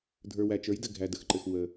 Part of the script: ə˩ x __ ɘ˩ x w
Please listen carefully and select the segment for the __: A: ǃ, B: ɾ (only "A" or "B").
A